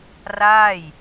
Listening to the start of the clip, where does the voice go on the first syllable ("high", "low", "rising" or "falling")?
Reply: falling